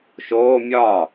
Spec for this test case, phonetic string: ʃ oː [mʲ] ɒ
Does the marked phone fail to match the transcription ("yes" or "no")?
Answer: no